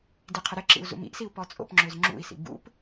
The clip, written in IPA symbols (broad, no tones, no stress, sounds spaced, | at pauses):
d i qʰ ɪ ɾ ɪ ǁ ḭ u̯ z ṵ m ḭ ʔ s i u̯ p ɔ t͡sʼ o̰ p ŋ͡ǁ ø z ŋ͡ǁ ṵ i̯ s ḭ b ṵ p